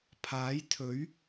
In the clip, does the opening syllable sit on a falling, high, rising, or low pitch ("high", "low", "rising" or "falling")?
rising